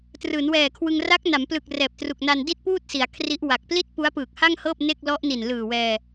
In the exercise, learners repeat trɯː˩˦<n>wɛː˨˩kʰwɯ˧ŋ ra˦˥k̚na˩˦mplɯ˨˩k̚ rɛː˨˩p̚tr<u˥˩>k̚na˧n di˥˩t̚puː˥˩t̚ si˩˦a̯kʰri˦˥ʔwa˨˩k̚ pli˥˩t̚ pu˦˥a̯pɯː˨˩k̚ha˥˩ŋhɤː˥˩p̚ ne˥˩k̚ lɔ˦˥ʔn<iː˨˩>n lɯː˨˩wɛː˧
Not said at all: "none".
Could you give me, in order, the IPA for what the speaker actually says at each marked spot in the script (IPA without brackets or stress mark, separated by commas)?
n, u˨˩, i˨˩